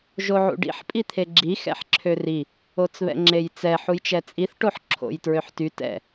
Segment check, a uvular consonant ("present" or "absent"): absent